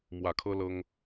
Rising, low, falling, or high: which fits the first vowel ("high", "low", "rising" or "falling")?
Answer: low